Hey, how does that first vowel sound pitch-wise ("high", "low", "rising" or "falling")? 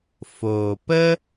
low